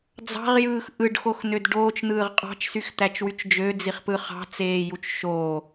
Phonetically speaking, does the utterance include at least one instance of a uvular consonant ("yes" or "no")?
yes